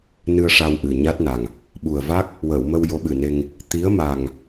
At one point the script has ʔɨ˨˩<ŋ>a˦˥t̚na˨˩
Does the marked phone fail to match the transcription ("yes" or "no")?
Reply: yes